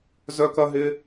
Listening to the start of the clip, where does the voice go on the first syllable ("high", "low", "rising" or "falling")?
high